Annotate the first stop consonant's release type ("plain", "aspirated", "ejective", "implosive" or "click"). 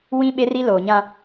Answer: implosive